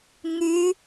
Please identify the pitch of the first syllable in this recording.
rising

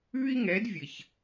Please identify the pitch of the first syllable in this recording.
high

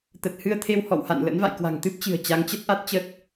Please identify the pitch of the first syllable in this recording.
low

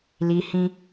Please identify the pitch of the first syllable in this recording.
high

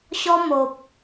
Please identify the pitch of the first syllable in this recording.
high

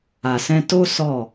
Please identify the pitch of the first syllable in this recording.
low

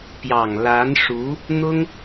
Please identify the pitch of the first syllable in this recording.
low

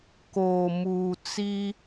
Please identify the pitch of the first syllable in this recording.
low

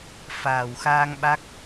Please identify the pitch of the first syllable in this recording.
low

